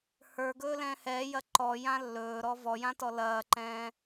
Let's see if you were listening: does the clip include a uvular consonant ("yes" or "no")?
no